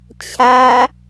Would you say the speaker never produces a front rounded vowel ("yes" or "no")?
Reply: yes